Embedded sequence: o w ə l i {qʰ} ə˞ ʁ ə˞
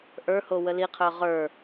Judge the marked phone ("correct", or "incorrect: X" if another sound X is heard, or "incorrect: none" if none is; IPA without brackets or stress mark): correct